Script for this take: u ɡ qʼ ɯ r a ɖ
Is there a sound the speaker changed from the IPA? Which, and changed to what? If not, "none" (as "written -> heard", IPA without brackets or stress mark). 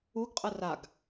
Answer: ɖ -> ɡ